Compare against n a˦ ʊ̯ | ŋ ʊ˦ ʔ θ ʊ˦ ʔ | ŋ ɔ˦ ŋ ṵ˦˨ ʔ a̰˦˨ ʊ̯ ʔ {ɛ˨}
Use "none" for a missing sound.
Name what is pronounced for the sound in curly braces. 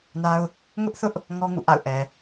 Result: ɛ˨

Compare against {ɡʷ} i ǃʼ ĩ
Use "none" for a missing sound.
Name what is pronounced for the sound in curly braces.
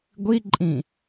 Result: ɡʷ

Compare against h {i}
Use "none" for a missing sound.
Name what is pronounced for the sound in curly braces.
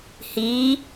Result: i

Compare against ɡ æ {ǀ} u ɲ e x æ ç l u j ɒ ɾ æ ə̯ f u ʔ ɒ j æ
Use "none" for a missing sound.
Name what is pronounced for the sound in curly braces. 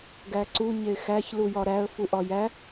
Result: ǀ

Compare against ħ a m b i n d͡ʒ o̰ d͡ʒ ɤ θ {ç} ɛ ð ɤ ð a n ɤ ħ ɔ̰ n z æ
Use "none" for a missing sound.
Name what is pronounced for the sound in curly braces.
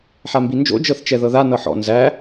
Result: t͡ʃ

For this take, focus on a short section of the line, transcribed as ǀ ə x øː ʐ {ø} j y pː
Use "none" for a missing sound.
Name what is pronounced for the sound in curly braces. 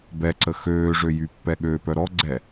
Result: ø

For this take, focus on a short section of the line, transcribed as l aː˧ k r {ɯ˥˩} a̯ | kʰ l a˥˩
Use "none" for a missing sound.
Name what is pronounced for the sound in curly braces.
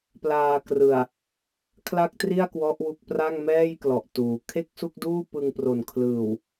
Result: ɯ˨˩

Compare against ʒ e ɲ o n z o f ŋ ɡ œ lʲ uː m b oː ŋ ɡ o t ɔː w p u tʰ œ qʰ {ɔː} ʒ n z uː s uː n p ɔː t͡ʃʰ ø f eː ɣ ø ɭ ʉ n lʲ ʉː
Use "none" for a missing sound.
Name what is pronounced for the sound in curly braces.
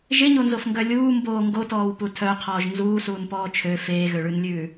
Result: ɔː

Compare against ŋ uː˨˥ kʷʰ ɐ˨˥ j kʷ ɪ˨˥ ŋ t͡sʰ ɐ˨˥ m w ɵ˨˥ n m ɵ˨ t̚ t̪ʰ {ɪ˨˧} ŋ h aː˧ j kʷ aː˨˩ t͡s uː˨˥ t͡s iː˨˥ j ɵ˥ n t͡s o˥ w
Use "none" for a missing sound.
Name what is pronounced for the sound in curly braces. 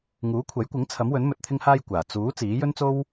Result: ɪ˧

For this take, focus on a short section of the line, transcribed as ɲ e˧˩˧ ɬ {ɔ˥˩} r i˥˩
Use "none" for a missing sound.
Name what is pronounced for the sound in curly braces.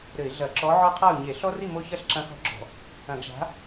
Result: ɔ˦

